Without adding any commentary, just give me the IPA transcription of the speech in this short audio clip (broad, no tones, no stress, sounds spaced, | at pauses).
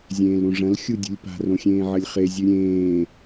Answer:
zʲ ẽː l ɾ ũ ʐ ɐ̃ l xʲ u dʲ ṳ lʲ p a̤ r õ xʲ ẽː ʕ ɐ lʲ χ e zʲ ʉ ɾʲ ẽː